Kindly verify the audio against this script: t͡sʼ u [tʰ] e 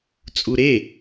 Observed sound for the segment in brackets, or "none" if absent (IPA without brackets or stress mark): ɾ